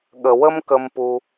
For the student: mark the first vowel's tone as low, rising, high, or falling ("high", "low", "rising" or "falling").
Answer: low